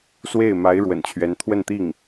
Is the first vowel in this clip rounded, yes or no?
no